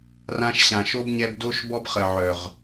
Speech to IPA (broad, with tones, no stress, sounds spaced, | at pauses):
r ã˧ ʃ ɕ ã˨ ʃ o˦ b ɲ ɛ˧ b d o˦ ʃ b ɔ˦ b χ ə˨ ʕ œ˨ ʁ